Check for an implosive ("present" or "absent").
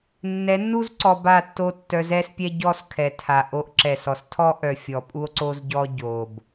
absent